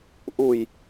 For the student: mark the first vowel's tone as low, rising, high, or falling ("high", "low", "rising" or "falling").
low